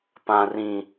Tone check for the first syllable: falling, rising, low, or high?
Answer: high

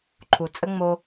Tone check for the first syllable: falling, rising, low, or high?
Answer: low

